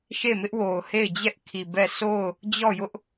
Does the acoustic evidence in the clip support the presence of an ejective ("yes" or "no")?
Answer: no